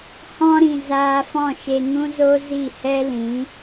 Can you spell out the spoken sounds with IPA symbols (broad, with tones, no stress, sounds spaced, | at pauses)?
h ɔ̃˦ ɾ ĩ˨ z aː˧ f ɔ̃˦˨ ʃ e˧ ŋ ũ˦ z o˦ z i˦˨ h ɛ˦ l ĩ˨˦